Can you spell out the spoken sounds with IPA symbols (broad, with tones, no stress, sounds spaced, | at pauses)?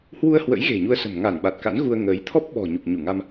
h w u˧ ə̯ h w ə̰˧˥ j ɣ e̤˨˩ ɲ u˧ ə̯ s ə̤˨˩ m ŋ a˧˩ n ɓ a˨˩ t̚ k a̰˧˥ n ɣ u˧ ə̯ ŋ əː˨˦ j t̪ʰ ɔ˦˥ p̚ ɓ ɔ̤˨˩ ɲ u˨˩ k̚ ɲ u˧˩ ŋ a˧ m